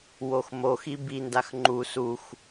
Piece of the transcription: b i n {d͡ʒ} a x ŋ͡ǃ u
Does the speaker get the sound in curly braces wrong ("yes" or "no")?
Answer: yes